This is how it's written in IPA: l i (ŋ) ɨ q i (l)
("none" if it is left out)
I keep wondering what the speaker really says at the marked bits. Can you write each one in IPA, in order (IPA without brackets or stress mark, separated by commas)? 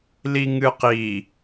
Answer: ŋ, none